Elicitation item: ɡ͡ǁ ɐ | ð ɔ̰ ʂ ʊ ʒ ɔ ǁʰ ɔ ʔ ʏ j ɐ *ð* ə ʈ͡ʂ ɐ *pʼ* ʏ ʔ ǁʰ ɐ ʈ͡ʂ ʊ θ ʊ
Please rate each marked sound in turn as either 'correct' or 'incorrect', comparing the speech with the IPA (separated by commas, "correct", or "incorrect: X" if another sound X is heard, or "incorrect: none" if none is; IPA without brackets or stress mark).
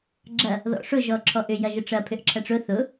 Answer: incorrect: ʒ, incorrect: pʰ